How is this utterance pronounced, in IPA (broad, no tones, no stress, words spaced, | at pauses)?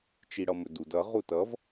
t͡ʃiɽʌmɵdud ʌ ʁutʌv